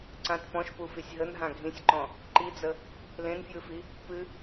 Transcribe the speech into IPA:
ǀãt pɔ̃ʃpufisʲ ɦənɦã ɡʱĩsʲǃɔ̃ | ǃid͡zə | lẽnfjɨfi | pɨ

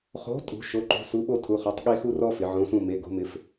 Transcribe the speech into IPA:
χo̤˨˥tʼṳ˩˧ ʃo˩˧˩ǃṳ˩˧˩su˨˥ ɓo˥tʰu˩˧˩χɔ˨˥tˤ ɠe˥xu˥rɔ˥ fɪ˩˧ʕõ˨˥sũ˦˨me˩˧˩ ɡo̤˨˥mɪ˨˥f

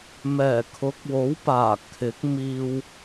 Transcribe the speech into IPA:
mɛː˨˩kʰʊ˨˥k̚wo˨˥wpaː˨˩ kʰɪ˨˥k̚miː˧w

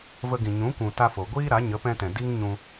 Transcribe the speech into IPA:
və˧ɡĩ˨ ɲũ˨˦kʷũ˨ ta˧fo˨ɡʷiː˦ɾa˨˦ ɲə˨˦pɛ̃˧tɛ̃˨ di˦ŋɲũ˧

